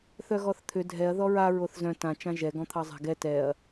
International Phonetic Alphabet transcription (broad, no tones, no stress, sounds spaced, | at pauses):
θ œ ɣ ɔ θ t̪ʰ ʏ dʱ ɛ ɐ̯ ð ɔ ɹ a ɹ o θ z œ̃ t ã t͡ʃ ã ʒ ɛ ɡ ɔ̃ t̪ʰ ɑ zˤ a̤ ɡ ɛ t ɛ ɐ̯